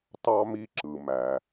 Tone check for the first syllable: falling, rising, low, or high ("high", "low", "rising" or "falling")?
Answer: high